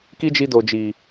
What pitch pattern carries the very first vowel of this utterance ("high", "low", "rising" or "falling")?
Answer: high